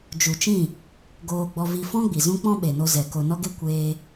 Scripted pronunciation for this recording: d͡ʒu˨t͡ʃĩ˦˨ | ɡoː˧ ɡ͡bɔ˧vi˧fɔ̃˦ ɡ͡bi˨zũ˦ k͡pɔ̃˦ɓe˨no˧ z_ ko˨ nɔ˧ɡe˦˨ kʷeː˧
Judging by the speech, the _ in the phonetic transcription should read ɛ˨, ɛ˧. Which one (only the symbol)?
ɛ˨